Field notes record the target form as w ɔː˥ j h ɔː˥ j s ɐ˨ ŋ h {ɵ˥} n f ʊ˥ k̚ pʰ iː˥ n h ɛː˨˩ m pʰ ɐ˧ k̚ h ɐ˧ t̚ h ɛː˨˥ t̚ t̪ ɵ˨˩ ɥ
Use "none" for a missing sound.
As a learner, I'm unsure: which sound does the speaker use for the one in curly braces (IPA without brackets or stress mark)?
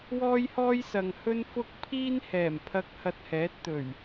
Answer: ɵ˥